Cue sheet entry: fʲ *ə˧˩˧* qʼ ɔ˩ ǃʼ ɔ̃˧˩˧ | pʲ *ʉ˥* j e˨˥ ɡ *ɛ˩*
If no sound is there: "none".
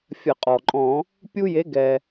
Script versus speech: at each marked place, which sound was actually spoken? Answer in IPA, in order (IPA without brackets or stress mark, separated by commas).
ə˧˩˧, u˥, ɛ˩